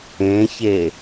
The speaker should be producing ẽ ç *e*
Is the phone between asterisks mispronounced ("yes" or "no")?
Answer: no